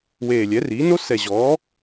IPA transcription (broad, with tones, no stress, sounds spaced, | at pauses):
w eː˨˩ lʲ ɛ˩˥ r iː˩˥ n o˦˥ s ɛ˨˩ ʑ ɔː˩˥